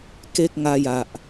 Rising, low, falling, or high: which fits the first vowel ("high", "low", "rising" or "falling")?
high